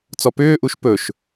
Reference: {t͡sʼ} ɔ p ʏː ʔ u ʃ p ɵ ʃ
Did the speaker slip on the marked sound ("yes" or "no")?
yes